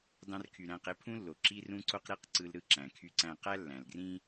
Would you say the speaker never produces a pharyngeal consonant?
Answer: yes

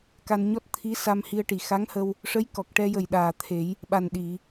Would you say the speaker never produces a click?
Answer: yes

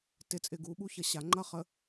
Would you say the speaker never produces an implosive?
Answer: no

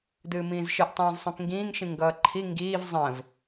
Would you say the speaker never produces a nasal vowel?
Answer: no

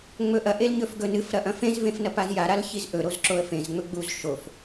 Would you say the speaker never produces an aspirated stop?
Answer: yes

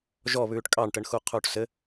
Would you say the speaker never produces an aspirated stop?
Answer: no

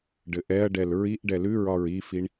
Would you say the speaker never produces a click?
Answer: yes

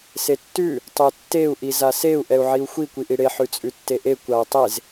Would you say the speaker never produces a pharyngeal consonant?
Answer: no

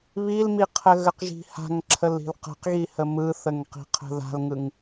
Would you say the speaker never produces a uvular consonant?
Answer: no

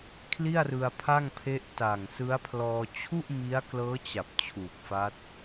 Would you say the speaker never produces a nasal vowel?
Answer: yes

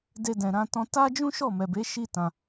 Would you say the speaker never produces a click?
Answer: yes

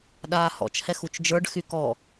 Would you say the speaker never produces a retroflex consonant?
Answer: no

